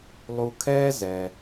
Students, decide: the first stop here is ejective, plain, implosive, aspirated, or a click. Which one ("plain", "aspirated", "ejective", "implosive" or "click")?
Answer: aspirated